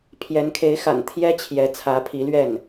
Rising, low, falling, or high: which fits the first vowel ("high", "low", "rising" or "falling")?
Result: rising